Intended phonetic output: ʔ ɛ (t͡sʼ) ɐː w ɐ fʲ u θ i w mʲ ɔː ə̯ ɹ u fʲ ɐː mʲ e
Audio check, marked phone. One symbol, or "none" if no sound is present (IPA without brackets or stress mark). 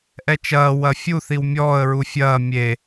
t͡ʃ